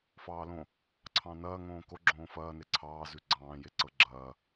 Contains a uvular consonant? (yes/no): no